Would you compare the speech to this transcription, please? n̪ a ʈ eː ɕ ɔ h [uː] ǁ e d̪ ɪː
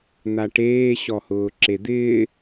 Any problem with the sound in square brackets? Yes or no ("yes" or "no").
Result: yes